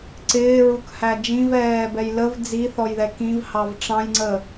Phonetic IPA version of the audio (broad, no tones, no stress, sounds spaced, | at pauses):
ǀ ɪː ɹ u k h æ d͡ʒ ĩ v ɛː b ɛ j l ə v d͡z i θ ɔ j ð ɛ k ĩ v h ɑ v ʈ͡ʂ ɑ̃ j ŋ͡ǀ ə